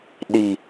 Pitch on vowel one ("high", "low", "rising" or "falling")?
low